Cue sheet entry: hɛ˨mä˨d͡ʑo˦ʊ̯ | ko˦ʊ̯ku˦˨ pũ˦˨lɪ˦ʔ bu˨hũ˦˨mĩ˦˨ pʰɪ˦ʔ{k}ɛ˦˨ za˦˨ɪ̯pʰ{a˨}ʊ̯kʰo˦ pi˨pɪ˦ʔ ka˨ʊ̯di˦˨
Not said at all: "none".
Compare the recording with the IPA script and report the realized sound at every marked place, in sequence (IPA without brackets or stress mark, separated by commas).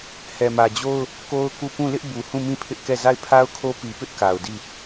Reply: k, a˦